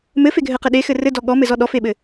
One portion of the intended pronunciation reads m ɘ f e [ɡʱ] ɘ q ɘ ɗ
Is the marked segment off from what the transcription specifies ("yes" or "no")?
no